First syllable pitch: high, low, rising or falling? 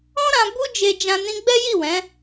high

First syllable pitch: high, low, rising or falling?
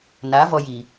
rising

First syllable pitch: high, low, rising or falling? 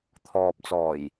low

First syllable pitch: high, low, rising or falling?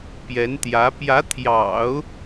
rising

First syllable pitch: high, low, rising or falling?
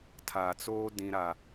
low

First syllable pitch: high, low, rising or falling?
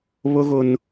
high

